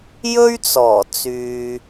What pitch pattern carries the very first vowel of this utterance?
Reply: high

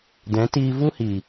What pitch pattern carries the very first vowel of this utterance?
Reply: rising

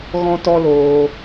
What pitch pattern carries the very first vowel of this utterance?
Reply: high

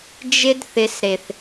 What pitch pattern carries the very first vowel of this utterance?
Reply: high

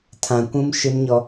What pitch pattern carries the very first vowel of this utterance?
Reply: low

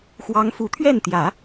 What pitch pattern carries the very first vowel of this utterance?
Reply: rising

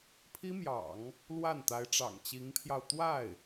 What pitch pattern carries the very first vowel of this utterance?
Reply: high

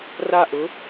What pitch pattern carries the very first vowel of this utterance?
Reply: falling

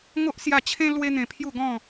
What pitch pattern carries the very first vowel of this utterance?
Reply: high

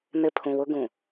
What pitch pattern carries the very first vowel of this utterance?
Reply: low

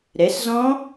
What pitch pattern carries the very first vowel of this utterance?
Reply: rising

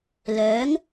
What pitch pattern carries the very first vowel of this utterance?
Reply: rising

